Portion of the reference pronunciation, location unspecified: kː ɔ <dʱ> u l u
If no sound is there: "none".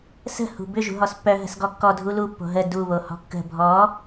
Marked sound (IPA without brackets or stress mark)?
dʱ